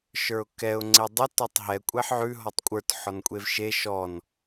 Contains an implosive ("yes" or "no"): no